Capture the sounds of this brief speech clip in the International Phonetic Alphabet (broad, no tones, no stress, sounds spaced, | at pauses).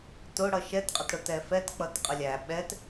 t ʊ ɽ ʌ ʃ ɛ t qʼ ə t ɽ ʊ t ɛ f ɛ t k͡p ʌ t qʼ ə lʲ æ ɓ ɛ t